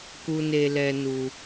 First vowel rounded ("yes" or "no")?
yes